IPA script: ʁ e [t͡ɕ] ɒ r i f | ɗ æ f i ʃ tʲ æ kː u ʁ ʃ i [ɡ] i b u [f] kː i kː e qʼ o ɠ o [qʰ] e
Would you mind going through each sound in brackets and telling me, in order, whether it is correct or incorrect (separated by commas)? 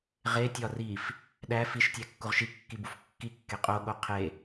incorrect, incorrect, correct, correct